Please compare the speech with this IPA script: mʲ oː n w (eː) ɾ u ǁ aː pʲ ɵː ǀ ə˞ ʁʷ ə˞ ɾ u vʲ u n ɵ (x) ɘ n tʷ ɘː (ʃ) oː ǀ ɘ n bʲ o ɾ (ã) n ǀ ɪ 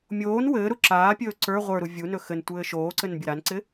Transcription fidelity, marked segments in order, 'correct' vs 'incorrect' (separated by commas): incorrect, correct, correct, incorrect